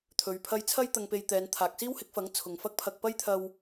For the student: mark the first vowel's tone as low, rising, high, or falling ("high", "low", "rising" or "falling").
low